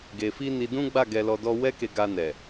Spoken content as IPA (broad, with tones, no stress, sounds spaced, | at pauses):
ɡ e˧ f i˦ n i˧ d ũ˦ ɡ͡b a˦˨ ɡ ɛ˧ l ɔ˧ d ɔ˦ w ɛ˦ k e˧ ɡ a˧ n ɛ˨